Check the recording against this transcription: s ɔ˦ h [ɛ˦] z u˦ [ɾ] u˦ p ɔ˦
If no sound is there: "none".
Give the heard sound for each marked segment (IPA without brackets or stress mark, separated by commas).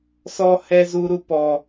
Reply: ɛ˦, ɾ